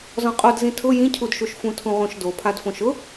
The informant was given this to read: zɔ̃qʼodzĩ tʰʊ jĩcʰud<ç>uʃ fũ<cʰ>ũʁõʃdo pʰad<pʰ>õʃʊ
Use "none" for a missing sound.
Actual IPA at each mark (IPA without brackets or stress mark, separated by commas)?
ʃ, tʰ, f